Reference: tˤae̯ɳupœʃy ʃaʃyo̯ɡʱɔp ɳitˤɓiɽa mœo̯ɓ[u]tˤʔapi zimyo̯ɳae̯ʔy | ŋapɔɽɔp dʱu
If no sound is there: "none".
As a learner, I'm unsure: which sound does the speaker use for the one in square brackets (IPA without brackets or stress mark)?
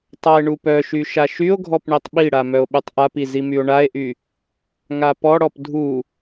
y